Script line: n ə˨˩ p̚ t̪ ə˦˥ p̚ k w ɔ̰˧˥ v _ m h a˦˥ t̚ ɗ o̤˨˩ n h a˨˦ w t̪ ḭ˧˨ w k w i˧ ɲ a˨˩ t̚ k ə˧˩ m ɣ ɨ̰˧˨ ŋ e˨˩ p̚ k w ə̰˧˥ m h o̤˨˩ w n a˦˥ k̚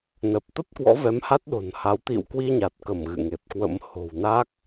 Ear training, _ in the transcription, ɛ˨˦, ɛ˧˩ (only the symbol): ɛ˨˦